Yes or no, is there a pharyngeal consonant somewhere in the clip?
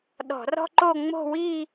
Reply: no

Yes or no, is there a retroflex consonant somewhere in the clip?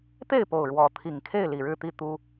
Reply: yes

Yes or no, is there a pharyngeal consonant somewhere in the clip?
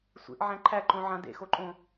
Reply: yes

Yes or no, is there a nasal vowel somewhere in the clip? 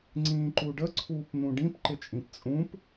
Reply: yes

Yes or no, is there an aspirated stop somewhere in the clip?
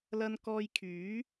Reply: yes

